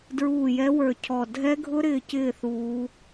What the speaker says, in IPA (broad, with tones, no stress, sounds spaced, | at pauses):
d ɹ uː˦˨ j ɛ˦˥ w ə˞˦˨ cʰ ɔ˦˨ dʱ ɛ˦˥ ɡʱ ʊ˦˥ ɾ ɪː˦˨ c ɪː˦˨ θ uː˦˥